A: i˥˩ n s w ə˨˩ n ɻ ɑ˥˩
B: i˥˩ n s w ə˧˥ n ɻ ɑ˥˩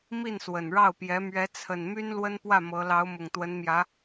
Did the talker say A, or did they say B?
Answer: A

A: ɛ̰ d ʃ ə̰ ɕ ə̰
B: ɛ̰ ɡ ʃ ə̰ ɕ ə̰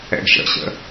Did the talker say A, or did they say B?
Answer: B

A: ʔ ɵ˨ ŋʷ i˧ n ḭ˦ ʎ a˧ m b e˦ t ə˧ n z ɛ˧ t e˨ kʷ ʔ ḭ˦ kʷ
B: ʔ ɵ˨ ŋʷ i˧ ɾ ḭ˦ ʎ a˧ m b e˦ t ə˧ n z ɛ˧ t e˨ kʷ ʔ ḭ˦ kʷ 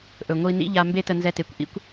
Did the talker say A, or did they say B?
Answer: A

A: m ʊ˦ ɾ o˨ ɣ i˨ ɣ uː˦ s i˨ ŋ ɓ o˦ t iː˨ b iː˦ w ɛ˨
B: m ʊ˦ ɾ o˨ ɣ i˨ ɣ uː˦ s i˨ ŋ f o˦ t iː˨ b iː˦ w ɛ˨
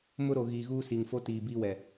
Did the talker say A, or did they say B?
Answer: B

